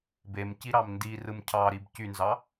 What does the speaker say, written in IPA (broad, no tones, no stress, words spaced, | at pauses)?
bem ciɾɑmndirɯm cʰɑɾib cynzɑ